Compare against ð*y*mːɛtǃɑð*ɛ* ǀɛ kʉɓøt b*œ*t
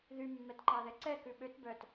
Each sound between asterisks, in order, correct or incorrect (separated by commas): correct, correct, correct